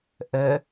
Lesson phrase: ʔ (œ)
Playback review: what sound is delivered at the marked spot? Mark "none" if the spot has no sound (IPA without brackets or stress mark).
œ